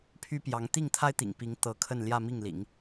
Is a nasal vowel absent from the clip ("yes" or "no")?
yes